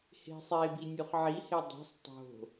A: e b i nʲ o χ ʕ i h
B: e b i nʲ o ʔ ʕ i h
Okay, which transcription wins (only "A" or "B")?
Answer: A